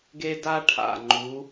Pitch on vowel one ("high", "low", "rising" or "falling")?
high